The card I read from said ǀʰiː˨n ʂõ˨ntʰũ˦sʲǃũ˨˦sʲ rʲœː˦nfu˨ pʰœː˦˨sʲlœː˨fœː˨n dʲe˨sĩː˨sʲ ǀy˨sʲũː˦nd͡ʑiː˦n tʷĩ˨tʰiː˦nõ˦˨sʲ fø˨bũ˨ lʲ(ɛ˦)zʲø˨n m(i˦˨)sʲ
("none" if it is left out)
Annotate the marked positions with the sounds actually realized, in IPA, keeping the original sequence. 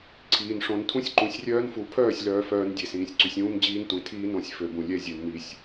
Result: ɛ˦, i˨

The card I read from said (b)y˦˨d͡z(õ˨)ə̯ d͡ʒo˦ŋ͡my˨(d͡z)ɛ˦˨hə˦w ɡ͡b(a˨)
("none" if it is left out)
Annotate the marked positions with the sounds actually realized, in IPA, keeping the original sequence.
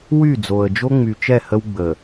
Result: w, o˨, t͡ʃ, ə˨

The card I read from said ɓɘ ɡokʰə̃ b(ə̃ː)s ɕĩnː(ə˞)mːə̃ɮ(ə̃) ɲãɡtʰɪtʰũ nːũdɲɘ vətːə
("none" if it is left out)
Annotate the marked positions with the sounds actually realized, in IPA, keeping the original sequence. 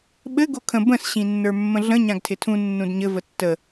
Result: ə̃, ə˞, ə̃

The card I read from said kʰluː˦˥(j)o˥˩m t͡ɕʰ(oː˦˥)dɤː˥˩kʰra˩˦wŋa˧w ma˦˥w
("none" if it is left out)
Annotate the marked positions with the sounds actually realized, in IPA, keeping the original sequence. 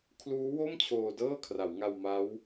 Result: w, oː˧

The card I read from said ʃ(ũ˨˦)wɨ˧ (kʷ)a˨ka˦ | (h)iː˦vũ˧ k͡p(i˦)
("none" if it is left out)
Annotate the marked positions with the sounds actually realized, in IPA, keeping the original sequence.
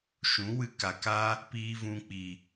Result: ũ˨˦, k, p, i˨

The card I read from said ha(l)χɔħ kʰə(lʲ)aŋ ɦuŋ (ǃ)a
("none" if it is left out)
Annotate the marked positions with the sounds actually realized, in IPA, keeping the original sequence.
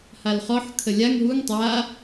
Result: l, lʲ, tˤ

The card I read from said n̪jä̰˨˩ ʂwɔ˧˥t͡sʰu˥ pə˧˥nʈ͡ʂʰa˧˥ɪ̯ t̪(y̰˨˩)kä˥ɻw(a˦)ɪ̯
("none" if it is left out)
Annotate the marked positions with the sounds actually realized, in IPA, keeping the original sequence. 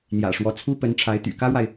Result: y̰˨˩, a˨

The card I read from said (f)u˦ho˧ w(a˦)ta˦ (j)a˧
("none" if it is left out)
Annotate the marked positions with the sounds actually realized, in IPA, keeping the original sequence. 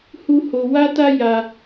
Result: h, a˦, j

